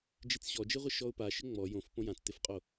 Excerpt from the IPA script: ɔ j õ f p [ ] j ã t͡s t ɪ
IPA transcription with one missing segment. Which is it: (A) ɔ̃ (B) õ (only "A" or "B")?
B